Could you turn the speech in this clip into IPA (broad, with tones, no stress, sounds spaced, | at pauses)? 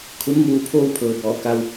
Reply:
kʰ u˧˥ n m uː˧ pʰ oː˥˨ w pʰ ɤː˩ b ɔː˩˧ k a˧ w